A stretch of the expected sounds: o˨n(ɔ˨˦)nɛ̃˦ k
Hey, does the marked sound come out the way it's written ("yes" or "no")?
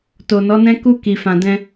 yes